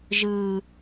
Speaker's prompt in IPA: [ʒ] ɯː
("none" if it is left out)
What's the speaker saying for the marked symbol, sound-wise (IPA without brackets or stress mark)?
ʒ